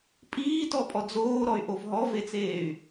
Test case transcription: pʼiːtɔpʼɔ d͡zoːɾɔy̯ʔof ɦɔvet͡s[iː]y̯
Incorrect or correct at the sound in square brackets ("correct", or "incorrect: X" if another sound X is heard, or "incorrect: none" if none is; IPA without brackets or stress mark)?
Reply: incorrect: eː